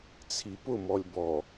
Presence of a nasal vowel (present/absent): absent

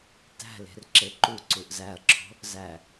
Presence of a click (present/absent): present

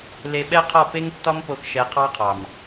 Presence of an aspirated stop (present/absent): present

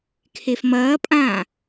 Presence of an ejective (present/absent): present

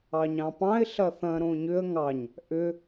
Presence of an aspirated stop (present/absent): absent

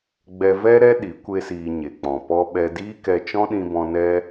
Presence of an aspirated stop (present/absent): absent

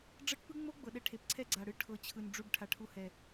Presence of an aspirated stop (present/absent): present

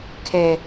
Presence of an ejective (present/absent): absent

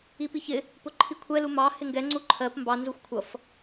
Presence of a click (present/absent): present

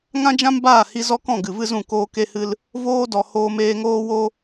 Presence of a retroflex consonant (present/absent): absent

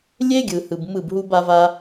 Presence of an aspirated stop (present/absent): absent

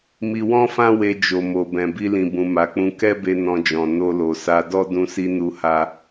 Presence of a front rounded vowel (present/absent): absent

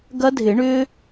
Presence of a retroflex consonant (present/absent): present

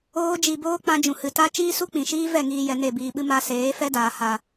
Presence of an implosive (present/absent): present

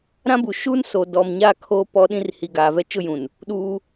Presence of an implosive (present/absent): present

